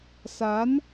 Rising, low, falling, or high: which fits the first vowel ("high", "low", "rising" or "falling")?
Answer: rising